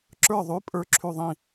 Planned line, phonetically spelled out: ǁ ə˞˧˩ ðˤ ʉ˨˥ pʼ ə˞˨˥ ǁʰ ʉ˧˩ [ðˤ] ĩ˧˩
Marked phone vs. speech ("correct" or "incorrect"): correct